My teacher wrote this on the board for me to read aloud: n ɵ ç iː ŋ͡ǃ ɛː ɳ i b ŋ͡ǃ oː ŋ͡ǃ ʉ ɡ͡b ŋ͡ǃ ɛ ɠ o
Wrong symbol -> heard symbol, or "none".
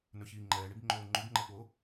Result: ɡ͡b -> b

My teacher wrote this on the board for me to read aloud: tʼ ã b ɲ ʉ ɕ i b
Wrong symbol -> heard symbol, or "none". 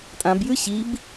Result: ɲ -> j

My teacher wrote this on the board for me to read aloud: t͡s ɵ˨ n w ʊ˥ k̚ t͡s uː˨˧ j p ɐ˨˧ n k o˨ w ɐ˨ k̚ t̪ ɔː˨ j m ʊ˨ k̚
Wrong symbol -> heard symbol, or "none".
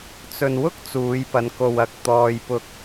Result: m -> p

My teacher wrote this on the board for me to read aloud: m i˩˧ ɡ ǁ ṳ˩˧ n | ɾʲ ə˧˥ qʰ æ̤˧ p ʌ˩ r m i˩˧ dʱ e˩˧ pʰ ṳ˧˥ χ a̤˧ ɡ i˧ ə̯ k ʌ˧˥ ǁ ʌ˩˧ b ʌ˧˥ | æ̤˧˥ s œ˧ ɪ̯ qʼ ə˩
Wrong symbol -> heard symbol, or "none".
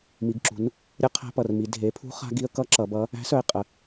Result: none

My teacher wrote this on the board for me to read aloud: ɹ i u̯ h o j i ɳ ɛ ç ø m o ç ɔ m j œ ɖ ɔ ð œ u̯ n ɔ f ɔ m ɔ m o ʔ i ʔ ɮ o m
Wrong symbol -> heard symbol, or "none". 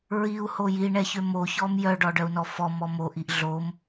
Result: ð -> ɖ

